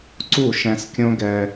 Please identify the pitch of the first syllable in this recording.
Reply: falling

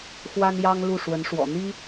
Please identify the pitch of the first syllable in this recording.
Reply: high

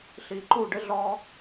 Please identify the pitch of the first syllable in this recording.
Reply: low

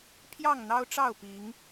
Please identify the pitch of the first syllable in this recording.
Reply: falling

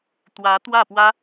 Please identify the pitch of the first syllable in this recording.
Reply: rising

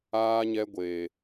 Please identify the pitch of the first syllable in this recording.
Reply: high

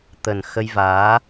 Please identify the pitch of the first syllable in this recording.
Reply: low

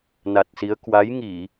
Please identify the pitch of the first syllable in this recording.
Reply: low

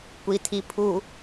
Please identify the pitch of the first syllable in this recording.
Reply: low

